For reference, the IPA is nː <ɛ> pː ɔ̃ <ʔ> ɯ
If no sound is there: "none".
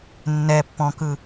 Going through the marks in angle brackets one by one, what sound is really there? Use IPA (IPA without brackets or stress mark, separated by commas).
ɛ, k